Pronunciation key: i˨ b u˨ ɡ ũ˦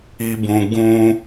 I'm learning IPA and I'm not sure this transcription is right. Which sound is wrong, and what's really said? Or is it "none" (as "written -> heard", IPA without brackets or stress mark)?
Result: u˨ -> ũ˨